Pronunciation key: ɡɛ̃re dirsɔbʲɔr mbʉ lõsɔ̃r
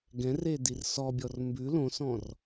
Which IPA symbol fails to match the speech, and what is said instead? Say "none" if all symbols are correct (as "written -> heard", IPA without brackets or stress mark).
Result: none